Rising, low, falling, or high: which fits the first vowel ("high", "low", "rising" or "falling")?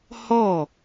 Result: falling